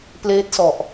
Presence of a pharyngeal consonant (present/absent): absent